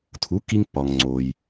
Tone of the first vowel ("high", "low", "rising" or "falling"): rising